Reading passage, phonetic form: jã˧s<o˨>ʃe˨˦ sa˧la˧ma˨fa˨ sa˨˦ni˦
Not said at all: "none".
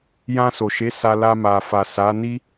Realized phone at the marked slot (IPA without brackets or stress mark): o˨